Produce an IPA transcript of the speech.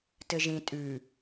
tɘʒĩ tʼʉ

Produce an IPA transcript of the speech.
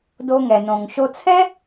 do˧ ŋɛ˩nõ˩ŋ ʃo˧t͡sʰɛ˥

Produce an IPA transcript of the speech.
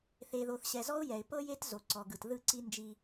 θe˨ðo˨θɕɛ˨zɔ˦ʊ̯ jɛ˨ɪ̯pɤ˦je˦t zo˨ǀɔ˨ɡɯ˨t ðɯ˦˨ǀi˦nd͡ʒi˦

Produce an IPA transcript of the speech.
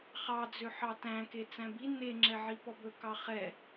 χɑd͡zøħɑ tæ̃ke t͡sæ̃bi ne ŋ͡ǁɛʕipɔbɵ kɑχɛ

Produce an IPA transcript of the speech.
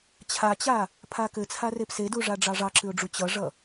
t͡ɕʰat͡ɕa | pʰakɘt͡sʰa repseduʐa ɖ͡ʐɑʐɑǁɨʊ̯ɖ͡ʐu t͡ɕʌʐʌ

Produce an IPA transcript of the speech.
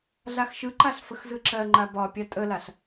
ɮaxʃɯǃaɬ fəxzɯǁɜŋ͡ǃa bɒpʲa tʼəlaɬ

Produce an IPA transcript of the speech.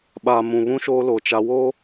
ɓa˨mũ˨βũ˦ ʃo˦ lo˨t͡ʃa˦ wo˦

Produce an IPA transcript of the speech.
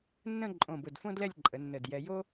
nːə̃˥˧ ǃʼõ˧˩bʊ˧˩dfõ˥ dlɛ˥˧lʲǃʼə˩˧ nːə˧˩djɛ˧ jo˥

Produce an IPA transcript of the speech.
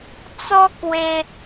t͡sɔ˦kwe˧

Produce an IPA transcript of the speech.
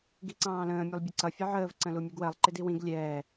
ɡiǀɑ̃ːlə̃ː mʲulˠbʲʌǀʌ fʲəʕəːv ǀə̃lumʲuɡwɜlˠ ǃɪdiwĩɡ lʲɛː

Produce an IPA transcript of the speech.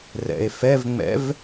rɛ̰e̯fɛvŋ͡mɛ̰v

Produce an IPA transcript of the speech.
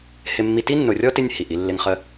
hɪ˦mːi˦ ti˥nːʊ˨rʲɔ˥tɪ˦nʲ hi˩ʔi˥lːɪ˦ŋ χə˥

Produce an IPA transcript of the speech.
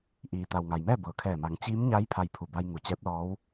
ʔiː˩t̪a˩wŋa˩jmɛː˥˨ bɤː˩kʰɛː˧˩ma˩˧ŋ t͡ɕiː˧˥mɲa˧˥j pʰa˧jpʰu˧˩ba˧j ŋu˩˧t͡ɕɛː˧˥p̚lɔː˧˥w

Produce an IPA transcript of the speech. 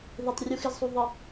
ðe˨tˤ rʲu˨xɪ˨zsˤu˨ ðˤɯ˨

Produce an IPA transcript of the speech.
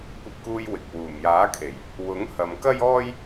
kʷɐ˧p̚kuː˧j wɪ˨k̚ wuː˨˩mjaː˨˥kʰe˨˩j | wʊ˨˥ŋ hɐ˨mkɐ˥jɔː˥j

